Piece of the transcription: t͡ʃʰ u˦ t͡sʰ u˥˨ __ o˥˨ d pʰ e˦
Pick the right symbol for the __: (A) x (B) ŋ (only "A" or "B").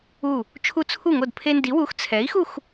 B